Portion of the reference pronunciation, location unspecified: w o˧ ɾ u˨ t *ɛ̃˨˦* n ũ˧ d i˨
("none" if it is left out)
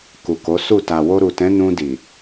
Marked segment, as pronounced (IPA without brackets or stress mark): ɛ̃˨˦